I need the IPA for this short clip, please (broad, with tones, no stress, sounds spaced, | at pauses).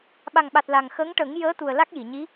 ɓ a˨˩ ŋ ɓ a˨˩ t̚ l a˨˩ ŋ x ə˧˥ ŋ ʈ ə˨˩˦ ŋ j əː˧˥ t̪ u˨˩ ə̯ l a˦˥ k̚ j i˨˩˨ ɲ i˧˥